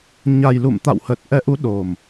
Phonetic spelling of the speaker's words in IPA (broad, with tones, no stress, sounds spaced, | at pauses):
ɲ a˨˩ j l ṵ˧˨ m t̪ a̰˧˨ w h ə˨˩ t̚ ʔ ɛ˨˦ ʔ u˨˦ ɗ o˨˩ m